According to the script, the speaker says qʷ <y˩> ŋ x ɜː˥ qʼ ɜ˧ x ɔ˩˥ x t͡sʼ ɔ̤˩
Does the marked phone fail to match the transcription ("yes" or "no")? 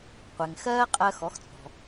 yes